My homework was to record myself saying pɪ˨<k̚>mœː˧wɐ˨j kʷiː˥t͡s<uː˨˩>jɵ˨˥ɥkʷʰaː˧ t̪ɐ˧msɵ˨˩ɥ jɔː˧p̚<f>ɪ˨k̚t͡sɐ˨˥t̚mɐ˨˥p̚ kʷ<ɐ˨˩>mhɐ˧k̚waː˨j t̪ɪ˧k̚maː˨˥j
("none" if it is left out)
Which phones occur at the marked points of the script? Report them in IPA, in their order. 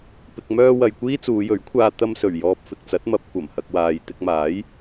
k̚, uː˨˧, f, ɐ˨˩

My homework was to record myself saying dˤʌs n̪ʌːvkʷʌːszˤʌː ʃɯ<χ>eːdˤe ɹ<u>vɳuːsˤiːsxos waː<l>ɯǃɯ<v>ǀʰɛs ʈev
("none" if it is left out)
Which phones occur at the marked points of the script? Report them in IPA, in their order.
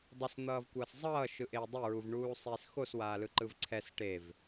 ʔ, u, l, v

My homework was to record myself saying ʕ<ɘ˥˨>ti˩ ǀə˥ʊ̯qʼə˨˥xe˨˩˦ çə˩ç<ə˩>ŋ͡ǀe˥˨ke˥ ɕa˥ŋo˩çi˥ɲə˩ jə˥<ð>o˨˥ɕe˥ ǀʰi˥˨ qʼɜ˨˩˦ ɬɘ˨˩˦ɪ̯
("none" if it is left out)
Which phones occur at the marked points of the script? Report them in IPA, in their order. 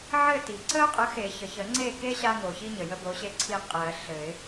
ɘ˥˨, ə˨˩˦, b

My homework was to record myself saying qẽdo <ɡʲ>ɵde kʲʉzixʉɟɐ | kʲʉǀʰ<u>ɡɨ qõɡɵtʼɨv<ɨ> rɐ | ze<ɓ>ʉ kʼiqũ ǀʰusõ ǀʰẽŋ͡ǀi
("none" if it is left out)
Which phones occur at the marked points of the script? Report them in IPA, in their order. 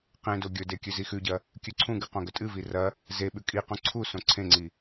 ɡʲ, ũ, i, ɓ

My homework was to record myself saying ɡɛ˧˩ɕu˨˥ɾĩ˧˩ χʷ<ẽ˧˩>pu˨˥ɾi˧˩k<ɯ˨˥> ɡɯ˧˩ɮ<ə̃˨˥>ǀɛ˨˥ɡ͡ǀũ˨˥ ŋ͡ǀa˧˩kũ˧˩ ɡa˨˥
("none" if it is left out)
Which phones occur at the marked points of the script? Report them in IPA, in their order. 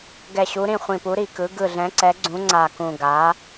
ĩ˧˩, ɯ˨˥, ɛ̃˨˥

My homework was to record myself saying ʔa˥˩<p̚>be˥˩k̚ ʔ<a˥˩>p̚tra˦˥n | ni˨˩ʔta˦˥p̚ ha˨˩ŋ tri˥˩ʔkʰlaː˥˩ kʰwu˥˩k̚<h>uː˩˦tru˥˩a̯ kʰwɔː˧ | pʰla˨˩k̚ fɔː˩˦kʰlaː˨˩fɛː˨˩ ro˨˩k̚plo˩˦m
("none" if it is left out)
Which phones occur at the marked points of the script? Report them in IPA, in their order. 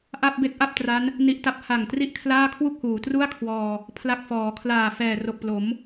p̚, a˥˩, h

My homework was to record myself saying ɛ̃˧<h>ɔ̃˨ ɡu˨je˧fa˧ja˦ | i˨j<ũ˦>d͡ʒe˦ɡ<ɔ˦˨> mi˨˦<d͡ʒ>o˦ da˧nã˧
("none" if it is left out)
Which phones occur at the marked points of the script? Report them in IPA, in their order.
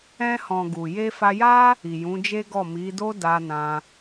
h, ũ˨˦, ɔ˦˨, d

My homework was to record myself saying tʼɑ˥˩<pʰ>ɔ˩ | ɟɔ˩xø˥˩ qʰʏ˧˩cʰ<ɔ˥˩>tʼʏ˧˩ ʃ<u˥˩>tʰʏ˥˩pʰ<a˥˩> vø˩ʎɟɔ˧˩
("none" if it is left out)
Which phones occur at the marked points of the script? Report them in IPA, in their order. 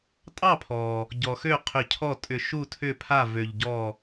pʰ, ɔ˥˩, u˥˩, a˥˩

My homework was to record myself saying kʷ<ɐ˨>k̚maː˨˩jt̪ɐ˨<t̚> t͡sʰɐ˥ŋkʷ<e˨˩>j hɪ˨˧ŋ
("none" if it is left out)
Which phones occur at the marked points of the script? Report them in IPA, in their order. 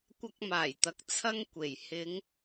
ɐ˧, k̚, e˨˩

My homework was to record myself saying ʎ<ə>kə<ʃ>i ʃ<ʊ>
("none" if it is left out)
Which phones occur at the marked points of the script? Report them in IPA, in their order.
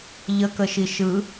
ə, ʃ, ɯ

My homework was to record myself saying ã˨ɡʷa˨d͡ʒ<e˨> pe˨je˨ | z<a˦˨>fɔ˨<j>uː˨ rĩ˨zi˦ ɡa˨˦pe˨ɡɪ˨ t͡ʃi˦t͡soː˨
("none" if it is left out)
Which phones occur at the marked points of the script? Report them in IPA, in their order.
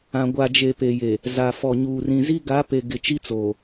e˨, a˨, ɲ

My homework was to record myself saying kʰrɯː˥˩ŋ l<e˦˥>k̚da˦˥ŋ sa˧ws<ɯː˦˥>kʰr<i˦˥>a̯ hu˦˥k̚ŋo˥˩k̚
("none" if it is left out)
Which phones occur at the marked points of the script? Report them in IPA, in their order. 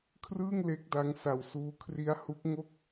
e˦˥, uː˦˥, i˦˥

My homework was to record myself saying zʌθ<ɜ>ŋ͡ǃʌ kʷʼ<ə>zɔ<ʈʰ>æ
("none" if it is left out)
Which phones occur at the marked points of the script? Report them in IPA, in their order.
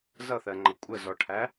ɜ, ə, ʈʰ

